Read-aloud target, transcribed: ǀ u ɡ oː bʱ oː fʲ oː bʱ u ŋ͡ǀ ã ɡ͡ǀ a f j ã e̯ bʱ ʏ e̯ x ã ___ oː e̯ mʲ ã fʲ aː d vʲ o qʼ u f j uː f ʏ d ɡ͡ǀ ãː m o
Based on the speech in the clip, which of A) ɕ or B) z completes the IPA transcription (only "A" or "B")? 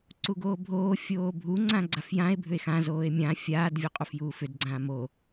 B